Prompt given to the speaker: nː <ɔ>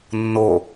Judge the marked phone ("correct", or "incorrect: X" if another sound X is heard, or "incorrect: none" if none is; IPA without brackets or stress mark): incorrect: o